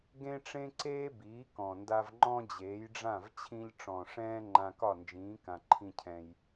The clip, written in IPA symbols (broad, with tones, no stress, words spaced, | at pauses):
ɡẽ˥ʈ͡ʂẽ˥ǀeː˥ biː˩˥kɔ̃˩nda˧v ŋ͡ǃɔ̃˥d͡ʑeː˩˥jɖ͡ʐã˥˩v t͡ɕʰĩ˧ʎʈ͡ʂɔ̃˩ ʂɛ̃ː˥ ŋ͡ǃã˧kɒ˥˩nd͡ʒĩː˩˥ kã˩ǃʰĩ˧cʰɛ̃˩j